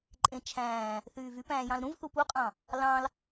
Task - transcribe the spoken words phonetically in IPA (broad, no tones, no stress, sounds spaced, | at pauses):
ǃʼ ẽ t͡ʃʰ æ̃ː | θ yː v y p æ̃ː j ɑ̃ l ɾ ũ v θ u p u qʼ ɑ̃ | l ɑ̃ l